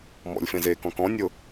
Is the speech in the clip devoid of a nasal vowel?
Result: no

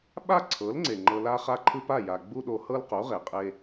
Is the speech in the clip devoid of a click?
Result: no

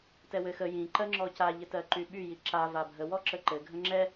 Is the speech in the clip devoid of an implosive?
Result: no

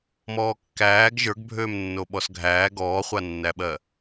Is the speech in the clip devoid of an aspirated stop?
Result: yes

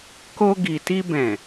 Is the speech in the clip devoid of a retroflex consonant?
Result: yes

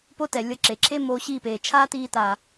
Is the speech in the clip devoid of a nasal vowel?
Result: yes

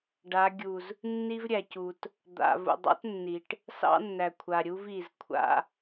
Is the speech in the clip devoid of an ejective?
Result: yes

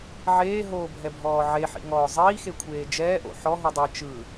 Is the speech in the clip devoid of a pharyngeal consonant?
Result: no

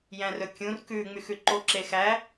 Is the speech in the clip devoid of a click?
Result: no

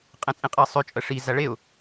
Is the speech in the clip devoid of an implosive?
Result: yes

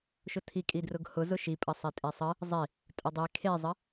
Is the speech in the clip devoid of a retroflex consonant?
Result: yes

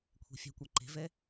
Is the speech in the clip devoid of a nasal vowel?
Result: yes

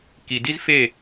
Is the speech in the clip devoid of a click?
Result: yes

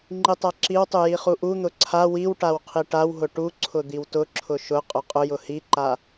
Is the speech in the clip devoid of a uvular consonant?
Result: no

